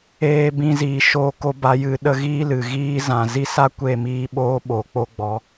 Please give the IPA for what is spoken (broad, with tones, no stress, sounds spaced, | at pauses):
eː˧ b ĩ˧ z iː˨ ʃ oː˧ k o˧ b a˨˦ j ɨ˨˦ ɗ ə˧ ɣ iː˦ l ɨ˨ ɣ iː˦ z ã˨ z i˦ s a˦ kʷ e˦˨ m iː˧ ɓ oː˧ ɓ oː˨ k͡p o˦ ɡ͡b ɔ˨˦